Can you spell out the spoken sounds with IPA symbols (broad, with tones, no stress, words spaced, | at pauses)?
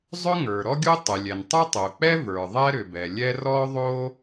zˤʏ˥ŋə˞˩ ɾɔ˥ɡʲo˥tˤɛ˩lʲɛ˩n tˤɵ˥tˤo˩k͡pɛ˥ və˞˩ðˤɛ˥ɾʏ˩ bɛ˩lʲɛ˥ rɔ˥ðˤo˥